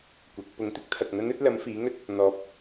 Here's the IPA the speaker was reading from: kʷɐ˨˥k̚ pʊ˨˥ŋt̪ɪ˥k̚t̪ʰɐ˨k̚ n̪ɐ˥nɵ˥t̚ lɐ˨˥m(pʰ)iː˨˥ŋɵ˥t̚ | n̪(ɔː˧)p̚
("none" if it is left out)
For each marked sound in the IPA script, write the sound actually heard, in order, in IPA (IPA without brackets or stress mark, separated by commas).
f, ɔː˧